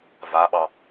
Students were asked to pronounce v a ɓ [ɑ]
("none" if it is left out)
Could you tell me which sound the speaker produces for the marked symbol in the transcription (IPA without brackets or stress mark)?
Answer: ɑ